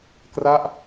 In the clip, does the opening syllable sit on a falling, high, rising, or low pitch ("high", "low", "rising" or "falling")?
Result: falling